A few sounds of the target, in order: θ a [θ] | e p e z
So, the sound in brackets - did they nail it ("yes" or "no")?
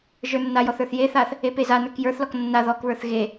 yes